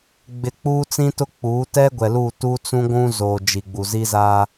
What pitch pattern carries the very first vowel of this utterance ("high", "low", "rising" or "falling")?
high